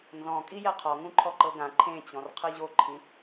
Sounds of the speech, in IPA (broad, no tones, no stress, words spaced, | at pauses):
nzɔ̃ kʼijɛqʰɔ ŋũǃʰɔǃɤɡã ǃʰẽt͡ɕɔ̃r qʰɯʑoǃʰĩ